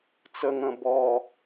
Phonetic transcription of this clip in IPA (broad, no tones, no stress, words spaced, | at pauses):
t͡səŋə̃ bɔ